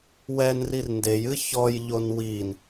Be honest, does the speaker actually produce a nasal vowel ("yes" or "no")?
no